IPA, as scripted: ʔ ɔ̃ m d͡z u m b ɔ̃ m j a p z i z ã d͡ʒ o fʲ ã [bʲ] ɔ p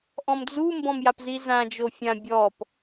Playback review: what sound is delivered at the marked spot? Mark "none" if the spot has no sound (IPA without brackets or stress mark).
bʲ